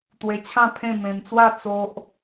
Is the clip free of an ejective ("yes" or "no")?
yes